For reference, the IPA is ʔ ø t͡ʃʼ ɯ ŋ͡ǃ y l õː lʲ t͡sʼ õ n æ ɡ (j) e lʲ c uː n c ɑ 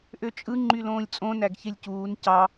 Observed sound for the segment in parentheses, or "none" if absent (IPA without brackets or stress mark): ç